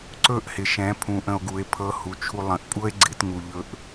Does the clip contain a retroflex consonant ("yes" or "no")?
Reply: no